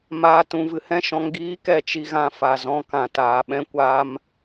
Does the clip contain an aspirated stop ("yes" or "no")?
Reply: no